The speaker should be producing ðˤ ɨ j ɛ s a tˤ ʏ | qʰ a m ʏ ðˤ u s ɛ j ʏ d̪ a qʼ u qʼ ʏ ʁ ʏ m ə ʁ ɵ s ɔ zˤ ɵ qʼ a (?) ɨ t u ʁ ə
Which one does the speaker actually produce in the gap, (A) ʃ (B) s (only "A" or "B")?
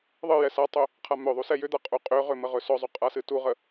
B